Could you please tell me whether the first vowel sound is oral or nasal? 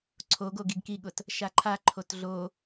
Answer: oral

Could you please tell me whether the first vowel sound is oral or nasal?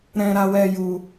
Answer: nasal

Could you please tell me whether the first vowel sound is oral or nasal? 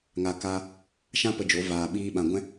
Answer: oral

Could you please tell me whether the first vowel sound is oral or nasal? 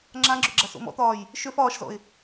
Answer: nasal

